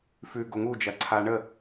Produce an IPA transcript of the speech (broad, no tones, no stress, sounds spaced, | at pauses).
f ʉ ɡ o ŋ u d͡ʒ ɐ ǀʰ a ɳ ə